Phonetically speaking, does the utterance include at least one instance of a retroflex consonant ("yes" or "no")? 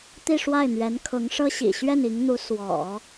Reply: yes